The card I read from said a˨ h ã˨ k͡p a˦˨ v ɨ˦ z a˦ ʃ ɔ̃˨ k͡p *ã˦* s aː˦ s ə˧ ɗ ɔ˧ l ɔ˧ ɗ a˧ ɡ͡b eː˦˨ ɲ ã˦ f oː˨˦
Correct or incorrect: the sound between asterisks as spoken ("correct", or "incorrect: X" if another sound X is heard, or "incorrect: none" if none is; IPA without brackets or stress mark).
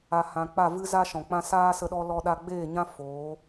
correct